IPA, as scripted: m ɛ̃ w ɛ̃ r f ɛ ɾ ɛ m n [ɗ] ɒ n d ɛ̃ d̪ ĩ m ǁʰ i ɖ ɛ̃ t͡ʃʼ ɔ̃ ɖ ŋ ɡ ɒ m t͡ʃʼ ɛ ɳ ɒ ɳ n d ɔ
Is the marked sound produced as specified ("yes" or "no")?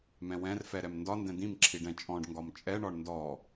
no